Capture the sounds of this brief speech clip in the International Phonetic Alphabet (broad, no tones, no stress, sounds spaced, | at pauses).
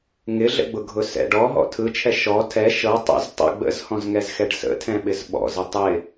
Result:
ŋ ɪ ɮ ə̰ ɡ͡b ʊ ɡʱ ʊ s ɛ̰ ɖ ɔ ɦ ɔ̰ tʰ ɯ t͡ʃʰ ɛ ʃ ɔ tʰ ɛ ʃ ɤ tˤ ə̰ z tˤ ə̰ ɡ͡b ə̰ z h ɔ̃ z ŋ ɛ z x ɛ ɖ s ə̰ tʰ ɛ̃ ɓ ɪ z ɓ ɔ̰ z ɪ tˤ ɪ